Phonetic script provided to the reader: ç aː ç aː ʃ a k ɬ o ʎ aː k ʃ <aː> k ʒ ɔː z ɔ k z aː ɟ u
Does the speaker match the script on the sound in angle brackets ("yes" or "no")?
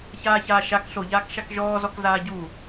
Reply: no